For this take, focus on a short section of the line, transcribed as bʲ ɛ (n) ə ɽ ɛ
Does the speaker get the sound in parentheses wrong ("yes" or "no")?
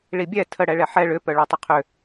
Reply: yes